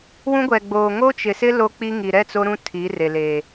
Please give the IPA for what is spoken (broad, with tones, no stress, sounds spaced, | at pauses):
w ũ˦ ɡʷ ɛ˨ ɡ͡b oː˨ ŋ o˦ t͡ʃ ɪ˨ s ɪ˦ l o˦ k͡p i˦ ŋ i˨ ɾ ɛ˦˨ t͡s o˦ ɾ ũ˦ tʰ i˨˦ r e˨ l e˨